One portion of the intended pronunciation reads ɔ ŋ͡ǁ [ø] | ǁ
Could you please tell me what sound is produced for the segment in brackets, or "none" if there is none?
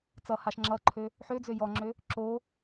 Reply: ø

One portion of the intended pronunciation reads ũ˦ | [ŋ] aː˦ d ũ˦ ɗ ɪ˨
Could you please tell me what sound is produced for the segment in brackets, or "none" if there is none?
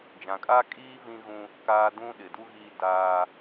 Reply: k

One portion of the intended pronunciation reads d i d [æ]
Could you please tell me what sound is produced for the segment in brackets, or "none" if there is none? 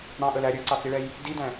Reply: æ̃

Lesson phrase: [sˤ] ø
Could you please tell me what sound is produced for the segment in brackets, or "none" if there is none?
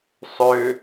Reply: sˤ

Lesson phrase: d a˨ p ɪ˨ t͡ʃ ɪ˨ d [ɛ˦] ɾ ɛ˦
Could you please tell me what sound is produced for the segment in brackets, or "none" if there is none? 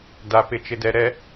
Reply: ɛ˨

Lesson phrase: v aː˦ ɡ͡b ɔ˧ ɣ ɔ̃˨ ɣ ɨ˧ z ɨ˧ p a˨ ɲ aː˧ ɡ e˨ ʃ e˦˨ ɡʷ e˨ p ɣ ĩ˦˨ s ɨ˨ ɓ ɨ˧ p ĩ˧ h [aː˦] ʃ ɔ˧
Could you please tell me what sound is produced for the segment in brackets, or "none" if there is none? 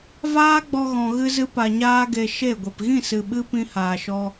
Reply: aː˨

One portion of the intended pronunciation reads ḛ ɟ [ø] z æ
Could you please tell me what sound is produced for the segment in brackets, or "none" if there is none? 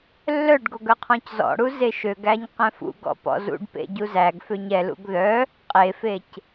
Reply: u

